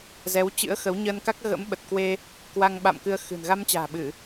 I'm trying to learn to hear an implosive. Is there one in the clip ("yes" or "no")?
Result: yes